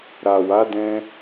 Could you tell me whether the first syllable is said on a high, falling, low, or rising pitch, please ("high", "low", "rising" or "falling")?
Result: low